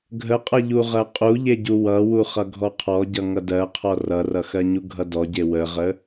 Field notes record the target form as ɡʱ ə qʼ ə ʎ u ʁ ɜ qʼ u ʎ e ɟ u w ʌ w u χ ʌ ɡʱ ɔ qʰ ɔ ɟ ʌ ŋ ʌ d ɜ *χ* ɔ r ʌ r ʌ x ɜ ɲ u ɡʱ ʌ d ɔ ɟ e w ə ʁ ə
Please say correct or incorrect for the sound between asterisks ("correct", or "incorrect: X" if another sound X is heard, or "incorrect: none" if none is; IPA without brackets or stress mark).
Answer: incorrect: qʰ